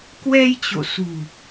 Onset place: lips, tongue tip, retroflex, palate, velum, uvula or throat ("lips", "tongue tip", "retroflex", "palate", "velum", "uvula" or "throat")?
velum